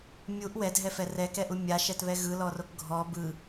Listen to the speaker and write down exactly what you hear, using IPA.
mʲ u ʔ w ɛ dʱ ɛ f ɛ r ɛ k ɛ ʔ u mʲ a ʃ ɛ t β ɛ ɣ ɯ l ɔ r o k ɡʱ ɔ b ɯ

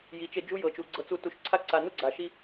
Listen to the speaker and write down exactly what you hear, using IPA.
j i˨ t͡ʃ e˧ d͡ʒ u˦ j ɤ˨ t͡ʃ u˨ ɡ͡ǀ ɤ˧ t͡s u˧ t u˨ ʃ ǀʰ a˦ ǀ a˨ n u˦ ɡ͡ǀ a˨ ʃ i˦

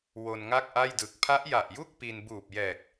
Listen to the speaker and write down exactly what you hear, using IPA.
w o˧ n ŋ a˥˩ k̚ ʔ a˥˩ j d ɯ˨˩ k̚ pʰ a˦˥ ʔ j a˨˩ ʔ j u˥˩ k̚ p i˧ n b uː˨˩ p̚ j ɛː˨˩ k̚

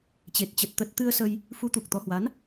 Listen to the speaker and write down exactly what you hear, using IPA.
t͡ɕ e˨˩ t̚ t͡ɕ ə˨˩ t̚ t̪ ə˨˩ t̚ t̪ ɨ˧ ə̯ s ə˧ j | f u˨˦ t̪ u˨˩ k̚ t̪ ɔ˨˦ h w a˨˦ n

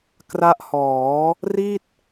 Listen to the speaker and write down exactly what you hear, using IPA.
k r a˦˥ ʔ h ɔː˩˦ | r i˥˩ t̚

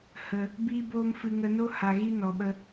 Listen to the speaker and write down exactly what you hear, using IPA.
h ə˦ | b iː˦ b oː˦ m f ɨ˧ ŋ ə˧ n o˦ h a˧ ɣ i˦ n ɔ˧ ɓ ə˦

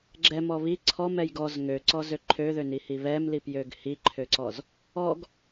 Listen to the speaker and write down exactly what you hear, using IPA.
ɡ͡ǁ ɛ m ɔ β i ǀʰ ɔ m ɛ j ɡ ɔ z ŋ ø ǀ ɔ z ø ǃʰ ø ð ø n i h i β ɛ m l i p j ø ɡ h i ǃʰ ø ǀ ɔ z | ɔ ɡ

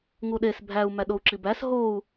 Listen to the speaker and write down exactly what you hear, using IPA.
ŋ u ɗ e s bʱ æ u̯ m æ ɗ o u̯ ǁ i b æ s ɦ o u̯

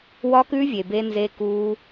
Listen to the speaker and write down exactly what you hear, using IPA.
w ɒ˦˥ k ʉ˦˥ vʲ e˩ b e˦˥ n z e˦˥ k u˦˥

